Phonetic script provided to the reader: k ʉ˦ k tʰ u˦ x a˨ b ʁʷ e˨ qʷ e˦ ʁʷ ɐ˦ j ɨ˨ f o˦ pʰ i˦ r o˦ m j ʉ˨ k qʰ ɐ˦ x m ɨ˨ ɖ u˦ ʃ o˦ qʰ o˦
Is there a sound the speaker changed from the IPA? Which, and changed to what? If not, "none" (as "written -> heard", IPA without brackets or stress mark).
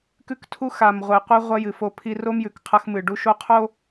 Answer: b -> m